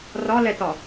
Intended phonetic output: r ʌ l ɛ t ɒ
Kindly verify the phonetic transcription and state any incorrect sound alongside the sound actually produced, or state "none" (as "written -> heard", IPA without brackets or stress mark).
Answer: ʌ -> ɒ